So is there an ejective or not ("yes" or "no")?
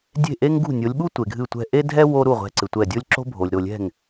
no